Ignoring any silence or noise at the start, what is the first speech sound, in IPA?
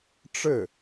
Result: ʈ͡ʂ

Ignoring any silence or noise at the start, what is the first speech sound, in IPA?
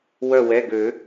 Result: w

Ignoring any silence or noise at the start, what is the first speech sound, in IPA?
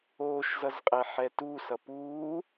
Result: oː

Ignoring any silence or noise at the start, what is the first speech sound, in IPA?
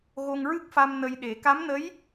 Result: ɣ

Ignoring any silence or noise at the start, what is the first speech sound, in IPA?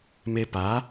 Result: m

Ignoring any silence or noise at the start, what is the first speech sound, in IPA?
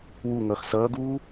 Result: w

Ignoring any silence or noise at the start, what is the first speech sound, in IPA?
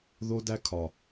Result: ð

